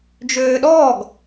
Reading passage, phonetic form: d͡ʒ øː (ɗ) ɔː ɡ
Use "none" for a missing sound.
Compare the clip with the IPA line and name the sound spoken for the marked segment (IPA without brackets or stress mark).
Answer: ɗ